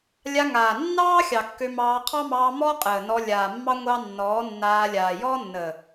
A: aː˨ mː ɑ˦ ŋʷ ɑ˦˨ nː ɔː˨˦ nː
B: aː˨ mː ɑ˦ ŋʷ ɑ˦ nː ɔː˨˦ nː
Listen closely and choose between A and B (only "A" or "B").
B